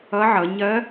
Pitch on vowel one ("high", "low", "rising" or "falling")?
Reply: rising